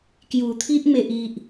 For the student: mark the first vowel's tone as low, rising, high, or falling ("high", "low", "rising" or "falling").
low